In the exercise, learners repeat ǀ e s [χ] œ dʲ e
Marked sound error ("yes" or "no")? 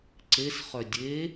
no